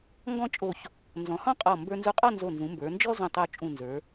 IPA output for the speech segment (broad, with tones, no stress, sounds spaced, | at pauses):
ŋ ɡ ɔ̃˥˧ t͡ʃʼ o˧˩ ç | n z ɔ̃˩˧ h ɔ̃˥˧ qʼ ɔ˧˩ m b ə˞˧ n z u˧ qʼ ɔ˥˧ n z o˧˩ n z ũ˩˧ m b ə˞˩˧ n d͡ʒ ɔ˥ z ũ˧˩ tˤ o˧ t͡ʃʼ ũ˧˩ n z ə˞˩˧